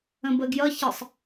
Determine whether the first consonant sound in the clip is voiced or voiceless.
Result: voiced